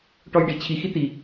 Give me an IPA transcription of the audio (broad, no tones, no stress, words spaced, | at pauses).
ʈɔjɖi t͡ɕʰi xit̪i